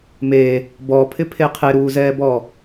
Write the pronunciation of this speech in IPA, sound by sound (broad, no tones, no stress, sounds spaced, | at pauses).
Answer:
m e | b ɔ pʰ ɪ pʰ e qʰ e ɾ uː z ɛː b ɔː